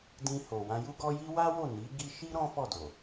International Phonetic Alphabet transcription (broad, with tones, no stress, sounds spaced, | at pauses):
d ĩ˧ h o˨ w ã˧ j u˦ ɡ ɔ˦ j i˦ w a˦ w o˦˨ n i˨˦ ɡ i˧ ʃ i˦ ɾ ɔ̃˦ f ɔ˦˨ d o˨